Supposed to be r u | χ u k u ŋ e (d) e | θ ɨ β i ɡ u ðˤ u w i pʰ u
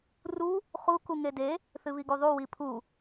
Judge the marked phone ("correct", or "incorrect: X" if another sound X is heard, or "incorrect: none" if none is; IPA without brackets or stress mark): correct